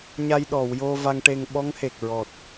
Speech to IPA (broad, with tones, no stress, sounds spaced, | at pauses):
ɲ a˧ j ɗ ɔ˨˩˨ w j o˧ v a˧ ŋ ʈ e˧ ŋ ɓ ɔ˧˥ ŋ h e˨˩ k̚ ɹ ɔ˨˩ t̚